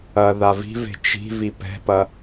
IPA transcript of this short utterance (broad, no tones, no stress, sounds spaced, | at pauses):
ɐ ð a v i̤ v e̤ t͡ʃ i̤ v i p ɛ̤ p ɐ